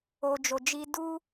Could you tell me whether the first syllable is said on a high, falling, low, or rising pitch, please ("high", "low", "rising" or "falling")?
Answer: low